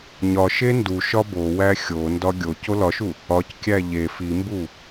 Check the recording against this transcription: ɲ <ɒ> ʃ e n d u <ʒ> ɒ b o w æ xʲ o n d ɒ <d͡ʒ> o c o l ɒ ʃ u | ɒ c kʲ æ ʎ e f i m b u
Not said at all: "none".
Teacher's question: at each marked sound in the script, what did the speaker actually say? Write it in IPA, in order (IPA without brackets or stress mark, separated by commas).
ɒ, ʃ, ɡʲ